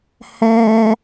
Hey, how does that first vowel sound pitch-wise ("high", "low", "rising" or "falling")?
high